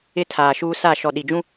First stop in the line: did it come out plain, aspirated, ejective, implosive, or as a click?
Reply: aspirated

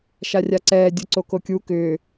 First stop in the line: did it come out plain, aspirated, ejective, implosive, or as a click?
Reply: click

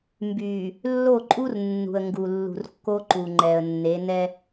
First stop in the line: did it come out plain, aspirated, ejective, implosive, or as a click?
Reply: plain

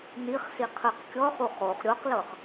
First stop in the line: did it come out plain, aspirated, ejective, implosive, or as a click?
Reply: aspirated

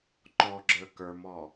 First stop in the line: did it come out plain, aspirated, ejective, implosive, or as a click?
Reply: click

